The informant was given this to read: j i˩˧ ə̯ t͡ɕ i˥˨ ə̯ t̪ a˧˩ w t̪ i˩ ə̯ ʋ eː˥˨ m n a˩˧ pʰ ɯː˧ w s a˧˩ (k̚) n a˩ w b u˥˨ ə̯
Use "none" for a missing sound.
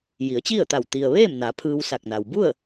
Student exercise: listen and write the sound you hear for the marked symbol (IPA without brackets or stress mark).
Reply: k̚